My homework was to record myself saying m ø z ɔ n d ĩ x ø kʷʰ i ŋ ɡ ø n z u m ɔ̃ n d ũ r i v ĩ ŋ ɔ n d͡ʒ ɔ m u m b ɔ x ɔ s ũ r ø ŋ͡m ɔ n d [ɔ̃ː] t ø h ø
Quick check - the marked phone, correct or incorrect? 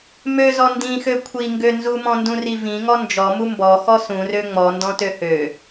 incorrect